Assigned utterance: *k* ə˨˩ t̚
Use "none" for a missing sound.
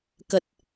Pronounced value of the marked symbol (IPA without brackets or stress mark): k